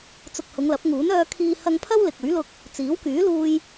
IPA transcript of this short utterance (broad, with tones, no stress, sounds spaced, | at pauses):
t͡s ʊ˨ k̚ h ʊ˨˧ ŋ l ɐ˨˥ p̚ ŋ uː˨˥ n œː˧ kʰ iː˧ h ɐ˧ ŋ pʰ ɐ˥ w l ɪ˨ k̚ ɵ˨˥ ɥ l ʊ˧ k̚ | t͡s iː˨˥ w k yː˨˥ l uː˧ j